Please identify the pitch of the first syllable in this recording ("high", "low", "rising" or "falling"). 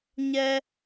high